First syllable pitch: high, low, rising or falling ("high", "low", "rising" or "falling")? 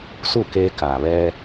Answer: falling